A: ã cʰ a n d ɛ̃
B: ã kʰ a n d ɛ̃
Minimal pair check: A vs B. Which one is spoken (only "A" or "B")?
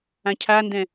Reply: A